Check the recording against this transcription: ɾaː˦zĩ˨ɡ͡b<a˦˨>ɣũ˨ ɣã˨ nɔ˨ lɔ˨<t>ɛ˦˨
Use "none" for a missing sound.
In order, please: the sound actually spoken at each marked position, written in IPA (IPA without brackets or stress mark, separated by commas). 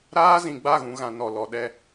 a˦˨, ɗ